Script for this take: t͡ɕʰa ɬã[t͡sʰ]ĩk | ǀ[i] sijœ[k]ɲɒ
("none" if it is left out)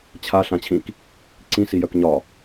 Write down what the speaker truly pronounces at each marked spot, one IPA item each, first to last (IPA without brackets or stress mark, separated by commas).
t͡ɕʰ, ĩ, k